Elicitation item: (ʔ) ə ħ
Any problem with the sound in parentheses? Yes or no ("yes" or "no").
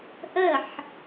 no